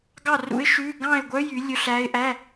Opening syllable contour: falling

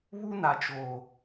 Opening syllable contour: high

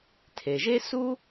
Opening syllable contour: low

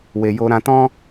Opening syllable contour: low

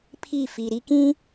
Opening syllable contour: falling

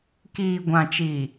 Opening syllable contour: low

